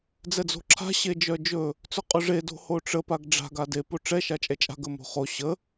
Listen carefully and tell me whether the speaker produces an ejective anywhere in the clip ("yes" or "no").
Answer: yes